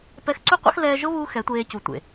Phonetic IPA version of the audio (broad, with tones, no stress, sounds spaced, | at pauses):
p ɛ˧ x ǀ u˦ qʷ a̰˦ x l ɛː˧ ʒ ʊ˦ β uː˦ x ɛ˨˦ tʷ eː˧ c u˨ tʷ ḛ˨